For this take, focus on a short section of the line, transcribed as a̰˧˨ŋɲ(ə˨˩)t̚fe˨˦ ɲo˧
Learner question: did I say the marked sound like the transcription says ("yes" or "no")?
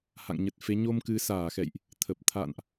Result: yes